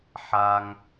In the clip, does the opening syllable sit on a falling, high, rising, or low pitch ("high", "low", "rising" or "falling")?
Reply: high